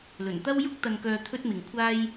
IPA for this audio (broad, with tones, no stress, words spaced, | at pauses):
lɵ˨˩nt̪ɐ˥wjʊ˥k̚ t̪ɐ˧nkœː˧ t̪ʰɵ˥t̚mɪ˨ŋ kʷʰaː˥j